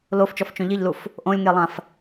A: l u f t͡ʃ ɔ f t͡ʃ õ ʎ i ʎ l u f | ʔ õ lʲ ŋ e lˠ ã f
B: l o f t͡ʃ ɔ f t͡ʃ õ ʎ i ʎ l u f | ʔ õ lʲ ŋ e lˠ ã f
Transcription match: B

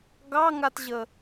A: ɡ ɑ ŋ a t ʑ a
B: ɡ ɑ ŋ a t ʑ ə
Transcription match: B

